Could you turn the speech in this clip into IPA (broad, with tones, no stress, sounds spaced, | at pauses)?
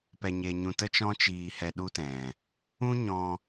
p ɛ˧ ɲ e˧ ɲ ũ˧ t ə˦ t͡ʃ ɔ̃˦ t͡ʃ iː˧ h ɛ˧ ɗ u˦ t ɛ̃˨ | ũ˦ ɲ ɔ̃˧